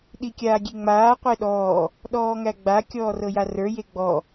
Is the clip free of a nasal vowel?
yes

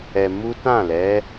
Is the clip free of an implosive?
yes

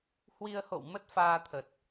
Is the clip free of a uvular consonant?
yes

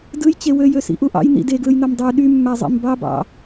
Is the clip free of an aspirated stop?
yes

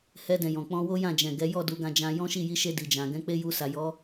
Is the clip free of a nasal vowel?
no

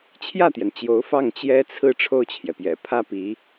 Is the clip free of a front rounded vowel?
yes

